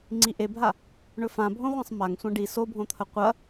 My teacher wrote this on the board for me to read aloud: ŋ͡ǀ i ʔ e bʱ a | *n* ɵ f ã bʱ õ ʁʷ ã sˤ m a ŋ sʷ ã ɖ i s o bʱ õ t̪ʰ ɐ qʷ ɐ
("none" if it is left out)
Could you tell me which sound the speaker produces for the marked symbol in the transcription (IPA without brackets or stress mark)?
ɳ